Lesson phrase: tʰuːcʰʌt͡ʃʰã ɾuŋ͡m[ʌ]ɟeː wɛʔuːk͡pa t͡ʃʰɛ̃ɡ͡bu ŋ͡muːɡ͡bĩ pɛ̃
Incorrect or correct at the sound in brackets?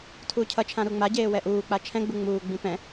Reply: incorrect: a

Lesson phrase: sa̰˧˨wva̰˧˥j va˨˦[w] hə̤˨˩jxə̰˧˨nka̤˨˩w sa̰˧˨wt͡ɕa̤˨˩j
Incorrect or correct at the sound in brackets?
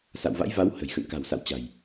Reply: correct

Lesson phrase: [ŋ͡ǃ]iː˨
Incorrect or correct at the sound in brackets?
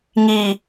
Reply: incorrect: ŋ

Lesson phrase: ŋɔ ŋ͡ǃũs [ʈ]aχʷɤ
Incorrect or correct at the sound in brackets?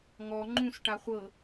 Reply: correct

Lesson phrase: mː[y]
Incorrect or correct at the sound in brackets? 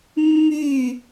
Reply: correct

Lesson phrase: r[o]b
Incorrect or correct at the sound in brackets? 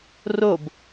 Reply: correct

